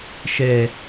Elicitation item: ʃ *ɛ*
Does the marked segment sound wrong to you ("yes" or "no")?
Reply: no